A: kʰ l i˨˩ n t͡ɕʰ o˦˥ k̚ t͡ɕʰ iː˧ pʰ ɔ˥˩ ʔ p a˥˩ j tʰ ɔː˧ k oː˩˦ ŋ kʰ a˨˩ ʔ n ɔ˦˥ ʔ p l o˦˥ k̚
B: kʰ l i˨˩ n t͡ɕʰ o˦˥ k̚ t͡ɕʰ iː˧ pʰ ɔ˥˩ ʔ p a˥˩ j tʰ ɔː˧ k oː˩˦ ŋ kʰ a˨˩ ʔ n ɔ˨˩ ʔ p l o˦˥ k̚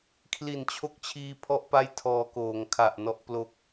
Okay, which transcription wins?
A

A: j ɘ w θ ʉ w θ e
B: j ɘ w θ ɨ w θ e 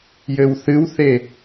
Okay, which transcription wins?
B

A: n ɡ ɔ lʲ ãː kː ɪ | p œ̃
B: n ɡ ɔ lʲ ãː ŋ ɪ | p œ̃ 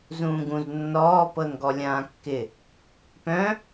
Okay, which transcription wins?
A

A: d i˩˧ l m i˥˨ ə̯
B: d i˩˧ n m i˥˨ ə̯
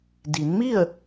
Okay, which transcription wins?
B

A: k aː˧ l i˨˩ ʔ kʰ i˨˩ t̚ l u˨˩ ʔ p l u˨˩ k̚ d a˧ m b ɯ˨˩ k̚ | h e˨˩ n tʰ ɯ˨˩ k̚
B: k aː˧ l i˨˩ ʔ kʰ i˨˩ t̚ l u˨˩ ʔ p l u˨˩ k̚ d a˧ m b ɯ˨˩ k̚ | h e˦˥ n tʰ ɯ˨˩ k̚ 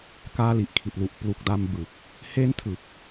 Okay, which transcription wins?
B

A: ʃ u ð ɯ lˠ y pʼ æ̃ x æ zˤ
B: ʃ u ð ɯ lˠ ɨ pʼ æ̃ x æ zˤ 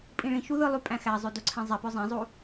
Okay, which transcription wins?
A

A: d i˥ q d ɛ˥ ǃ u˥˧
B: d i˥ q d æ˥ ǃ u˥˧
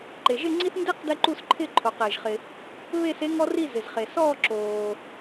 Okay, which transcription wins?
A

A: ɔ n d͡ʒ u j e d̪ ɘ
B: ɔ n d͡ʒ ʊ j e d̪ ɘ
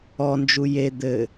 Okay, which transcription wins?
A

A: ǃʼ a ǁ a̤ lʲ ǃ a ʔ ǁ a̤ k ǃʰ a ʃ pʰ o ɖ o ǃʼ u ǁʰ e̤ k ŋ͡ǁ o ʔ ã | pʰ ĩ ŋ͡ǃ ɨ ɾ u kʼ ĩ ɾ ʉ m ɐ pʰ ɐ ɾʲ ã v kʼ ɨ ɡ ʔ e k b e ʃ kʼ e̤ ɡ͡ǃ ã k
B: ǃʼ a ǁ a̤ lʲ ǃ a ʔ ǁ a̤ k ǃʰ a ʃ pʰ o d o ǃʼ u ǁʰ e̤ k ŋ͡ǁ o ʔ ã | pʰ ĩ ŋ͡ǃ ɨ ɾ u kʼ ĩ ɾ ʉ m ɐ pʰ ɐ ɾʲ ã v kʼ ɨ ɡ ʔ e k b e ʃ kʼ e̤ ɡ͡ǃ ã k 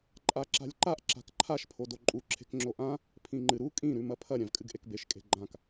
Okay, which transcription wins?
B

